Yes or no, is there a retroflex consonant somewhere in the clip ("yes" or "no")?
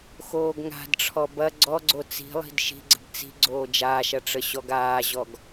yes